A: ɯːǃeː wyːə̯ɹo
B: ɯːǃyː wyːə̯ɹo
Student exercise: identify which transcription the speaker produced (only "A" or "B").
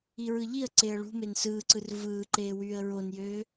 A